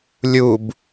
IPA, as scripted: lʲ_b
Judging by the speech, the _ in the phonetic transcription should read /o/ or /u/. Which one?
u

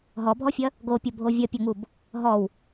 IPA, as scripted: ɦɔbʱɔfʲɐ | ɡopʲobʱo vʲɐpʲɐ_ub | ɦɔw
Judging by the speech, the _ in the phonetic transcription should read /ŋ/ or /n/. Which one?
ŋ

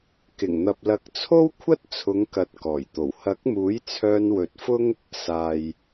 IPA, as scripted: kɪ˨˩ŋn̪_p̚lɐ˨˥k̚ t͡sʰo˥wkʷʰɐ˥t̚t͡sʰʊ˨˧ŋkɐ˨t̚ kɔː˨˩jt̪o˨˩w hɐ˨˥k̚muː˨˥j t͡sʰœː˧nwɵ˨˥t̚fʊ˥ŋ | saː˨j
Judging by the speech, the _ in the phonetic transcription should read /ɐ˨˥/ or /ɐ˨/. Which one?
ɐ˨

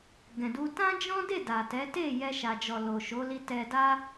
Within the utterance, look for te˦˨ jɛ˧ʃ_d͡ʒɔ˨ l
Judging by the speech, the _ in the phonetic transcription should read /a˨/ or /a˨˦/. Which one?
a˨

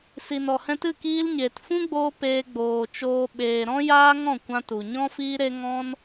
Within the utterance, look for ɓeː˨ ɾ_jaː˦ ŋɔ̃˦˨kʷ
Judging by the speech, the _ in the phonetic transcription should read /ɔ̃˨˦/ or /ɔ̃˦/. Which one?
ɔ̃˦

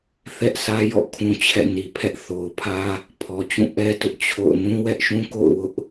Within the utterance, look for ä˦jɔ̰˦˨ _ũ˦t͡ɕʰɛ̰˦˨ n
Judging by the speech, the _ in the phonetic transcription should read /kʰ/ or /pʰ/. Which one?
kʰ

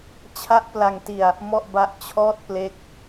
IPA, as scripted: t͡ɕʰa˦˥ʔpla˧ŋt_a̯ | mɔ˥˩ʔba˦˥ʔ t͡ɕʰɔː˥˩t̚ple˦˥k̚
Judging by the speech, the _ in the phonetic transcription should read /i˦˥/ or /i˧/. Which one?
i˧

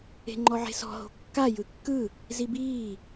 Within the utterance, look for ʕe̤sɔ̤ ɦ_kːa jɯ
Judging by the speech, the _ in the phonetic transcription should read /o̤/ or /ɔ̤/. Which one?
o̤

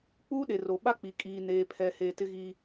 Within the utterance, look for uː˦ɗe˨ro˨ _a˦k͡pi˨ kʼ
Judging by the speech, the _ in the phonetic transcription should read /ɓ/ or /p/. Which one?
ɓ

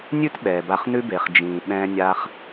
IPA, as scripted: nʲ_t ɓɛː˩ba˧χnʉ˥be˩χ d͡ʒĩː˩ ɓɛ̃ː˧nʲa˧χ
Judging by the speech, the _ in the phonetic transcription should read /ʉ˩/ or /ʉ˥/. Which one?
ʉ˥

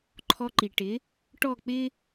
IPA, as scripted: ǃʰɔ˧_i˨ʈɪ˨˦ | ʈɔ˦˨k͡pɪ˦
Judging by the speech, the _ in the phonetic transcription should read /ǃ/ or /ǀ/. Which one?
ǃ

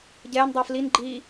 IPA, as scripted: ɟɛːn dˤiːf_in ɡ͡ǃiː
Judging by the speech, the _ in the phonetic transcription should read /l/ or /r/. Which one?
l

